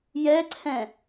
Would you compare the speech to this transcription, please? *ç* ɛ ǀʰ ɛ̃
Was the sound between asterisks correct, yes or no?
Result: no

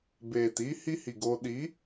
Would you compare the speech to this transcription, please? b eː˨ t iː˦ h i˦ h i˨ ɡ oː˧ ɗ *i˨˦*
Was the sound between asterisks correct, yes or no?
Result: yes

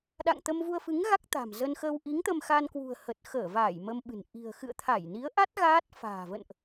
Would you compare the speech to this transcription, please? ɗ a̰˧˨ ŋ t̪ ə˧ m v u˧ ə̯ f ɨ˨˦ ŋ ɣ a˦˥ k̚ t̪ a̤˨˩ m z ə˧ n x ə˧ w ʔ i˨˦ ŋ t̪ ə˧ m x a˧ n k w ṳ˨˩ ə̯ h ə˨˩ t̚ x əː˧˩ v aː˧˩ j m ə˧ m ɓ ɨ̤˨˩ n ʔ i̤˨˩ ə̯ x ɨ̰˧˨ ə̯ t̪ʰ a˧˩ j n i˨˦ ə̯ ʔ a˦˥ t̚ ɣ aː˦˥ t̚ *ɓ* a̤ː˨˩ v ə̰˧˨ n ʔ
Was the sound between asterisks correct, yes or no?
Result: no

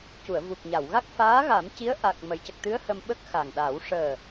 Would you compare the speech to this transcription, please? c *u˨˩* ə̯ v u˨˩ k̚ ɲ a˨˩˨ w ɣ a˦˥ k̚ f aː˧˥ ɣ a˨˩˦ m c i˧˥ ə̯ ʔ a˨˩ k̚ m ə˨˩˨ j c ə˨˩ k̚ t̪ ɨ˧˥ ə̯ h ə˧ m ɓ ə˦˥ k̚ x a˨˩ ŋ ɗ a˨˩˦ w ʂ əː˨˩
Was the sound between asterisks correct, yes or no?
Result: no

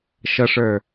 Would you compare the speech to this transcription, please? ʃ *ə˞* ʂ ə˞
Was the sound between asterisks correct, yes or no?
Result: no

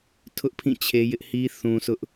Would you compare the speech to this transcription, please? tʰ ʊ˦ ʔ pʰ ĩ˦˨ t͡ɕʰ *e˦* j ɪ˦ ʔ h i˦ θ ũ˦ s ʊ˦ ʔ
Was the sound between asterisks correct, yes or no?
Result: yes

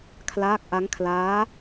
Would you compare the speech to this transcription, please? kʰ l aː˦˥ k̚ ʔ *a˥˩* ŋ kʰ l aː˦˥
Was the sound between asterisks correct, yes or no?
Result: no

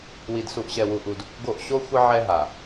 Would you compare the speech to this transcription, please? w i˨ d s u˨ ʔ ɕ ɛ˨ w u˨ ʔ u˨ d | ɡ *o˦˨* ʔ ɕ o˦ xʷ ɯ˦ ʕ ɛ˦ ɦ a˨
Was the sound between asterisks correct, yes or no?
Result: yes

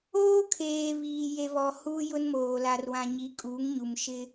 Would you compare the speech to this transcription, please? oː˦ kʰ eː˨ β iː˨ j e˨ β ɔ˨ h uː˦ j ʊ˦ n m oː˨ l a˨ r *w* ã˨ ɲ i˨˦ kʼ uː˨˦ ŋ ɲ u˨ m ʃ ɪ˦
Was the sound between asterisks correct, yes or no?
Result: yes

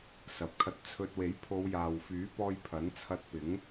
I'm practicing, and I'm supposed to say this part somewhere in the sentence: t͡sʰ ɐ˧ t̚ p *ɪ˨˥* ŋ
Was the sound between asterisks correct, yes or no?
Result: yes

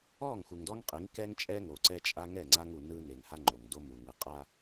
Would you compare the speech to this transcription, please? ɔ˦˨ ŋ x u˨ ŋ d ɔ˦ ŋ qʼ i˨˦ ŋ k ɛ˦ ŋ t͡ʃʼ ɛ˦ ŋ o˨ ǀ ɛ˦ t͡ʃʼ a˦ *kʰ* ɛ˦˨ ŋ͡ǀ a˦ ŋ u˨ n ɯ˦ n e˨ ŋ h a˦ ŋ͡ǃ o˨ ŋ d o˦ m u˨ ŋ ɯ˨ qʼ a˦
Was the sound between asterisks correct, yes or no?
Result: no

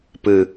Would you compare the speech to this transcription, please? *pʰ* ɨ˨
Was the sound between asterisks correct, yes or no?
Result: no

